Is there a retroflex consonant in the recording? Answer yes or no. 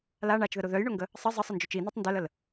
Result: yes